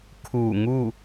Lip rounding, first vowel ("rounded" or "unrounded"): rounded